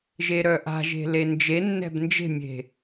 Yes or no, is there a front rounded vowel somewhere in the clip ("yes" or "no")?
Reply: yes